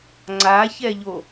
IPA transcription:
ŋ͡ǀ a ç ɛ ʎ o

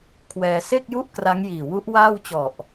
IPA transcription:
kʰ w ɛː˧ s e˥˩ k̚ j u˥˩ ʔ k r a˦˥ ŋ j iː˨˩ w u˦˥ ʔ w aː˥˩ w t͡ɕ ɔ˨˩ ʔ

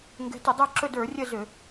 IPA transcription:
ŋ ɡ ɛ̤˨˦ t ə˧˩˧ dˤ ə˞˦˨ ǁ ɵ˦˨ d ə˞˧˩˧ rʲ ə˦˨ z ø˧˩˧

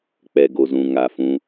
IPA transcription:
k͡p ɛ˨ ɡ o˨ z ũ˨ ŋ a˨ f ũ˧

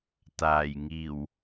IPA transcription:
t̪ aː˨˩ j ŋ iː˨˩ w

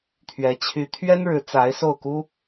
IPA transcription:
t̪ʰ ɥ ɛ˧˥ t͡ɕʰ y˧˥ t̪ʰ ɥ ɛ˥ n ɻ ɻ̩˧˥ t͡s a˧˥ ɪ̯ s o˥˩ ʊ̯ k u˥

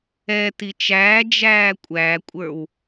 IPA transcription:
ɛ t i t͡ʃ æː d͡ʒ æː kʷʼ æ kʷʼ ə˞ w

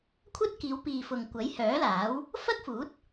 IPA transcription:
kʷʰ ɐ˥ t̚ k iː˨˧ w p iː˨ f ʊ˨ ŋ kʷ ɐ˨˥ j h œː˨˥ l aː˨˥ w | f ɐ˥ k̚ f uː˨˥ t̚

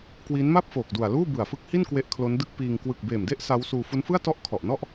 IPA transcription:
k w iː˦˥ n m a˥˩ p̚ f oː˨˩ k̚ d u˨˩ a̯ l uː˥˩ b ɯ˨˩ a̯ f ɯ˦˥ k̚ h i˥˩ n k w e˦˥ ʔ kʰ l o˦˥ n d ɯ˥˩ k̚ p iː˧ ŋ k w ɯ˨˩ k̚ b eː˨˩ m d e˥˩ ʔ s a˦˥ w s uː˧ f u˦˥ n f ɯ˥˩ a̯ t ɔ˥˩ ʔ kʰ ɔ˨˩ ʔ n ɔ˥˩ ʔ

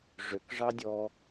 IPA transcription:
ʐ ø k ʐ ɑ dʲ ɔ

